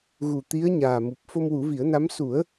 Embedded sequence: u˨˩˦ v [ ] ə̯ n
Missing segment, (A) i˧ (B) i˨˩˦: B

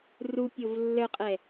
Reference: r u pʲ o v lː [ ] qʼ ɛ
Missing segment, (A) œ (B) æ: A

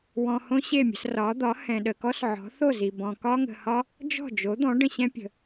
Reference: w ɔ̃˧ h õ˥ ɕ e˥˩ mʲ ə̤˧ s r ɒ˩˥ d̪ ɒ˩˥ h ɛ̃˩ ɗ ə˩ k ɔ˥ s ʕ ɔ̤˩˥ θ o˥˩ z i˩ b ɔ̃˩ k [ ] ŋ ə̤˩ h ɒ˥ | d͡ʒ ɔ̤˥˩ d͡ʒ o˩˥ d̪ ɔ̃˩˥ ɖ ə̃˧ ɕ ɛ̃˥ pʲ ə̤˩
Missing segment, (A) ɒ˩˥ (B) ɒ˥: B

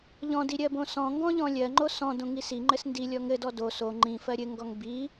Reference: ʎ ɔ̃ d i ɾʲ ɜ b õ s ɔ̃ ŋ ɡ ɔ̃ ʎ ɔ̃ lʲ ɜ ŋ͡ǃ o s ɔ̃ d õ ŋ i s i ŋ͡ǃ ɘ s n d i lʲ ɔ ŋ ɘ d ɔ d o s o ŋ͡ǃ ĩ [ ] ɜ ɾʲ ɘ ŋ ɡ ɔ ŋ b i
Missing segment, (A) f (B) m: A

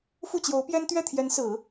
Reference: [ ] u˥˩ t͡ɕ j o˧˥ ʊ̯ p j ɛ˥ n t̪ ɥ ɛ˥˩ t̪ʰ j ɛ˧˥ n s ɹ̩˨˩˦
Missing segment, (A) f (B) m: A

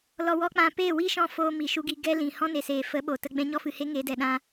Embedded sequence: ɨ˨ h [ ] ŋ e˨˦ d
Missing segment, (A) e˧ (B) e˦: B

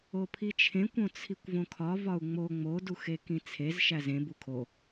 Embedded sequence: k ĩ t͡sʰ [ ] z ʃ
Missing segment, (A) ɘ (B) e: B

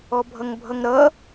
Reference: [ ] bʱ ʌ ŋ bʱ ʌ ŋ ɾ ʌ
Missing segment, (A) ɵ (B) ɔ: B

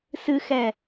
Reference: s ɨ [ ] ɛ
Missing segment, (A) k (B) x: B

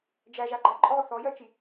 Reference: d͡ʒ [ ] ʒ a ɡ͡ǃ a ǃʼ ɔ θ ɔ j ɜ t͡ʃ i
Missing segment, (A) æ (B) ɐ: A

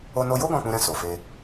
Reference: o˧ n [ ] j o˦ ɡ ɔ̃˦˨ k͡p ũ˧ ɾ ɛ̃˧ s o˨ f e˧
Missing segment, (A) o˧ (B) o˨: A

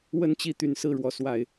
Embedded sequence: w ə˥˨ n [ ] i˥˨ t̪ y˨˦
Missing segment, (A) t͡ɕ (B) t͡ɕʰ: A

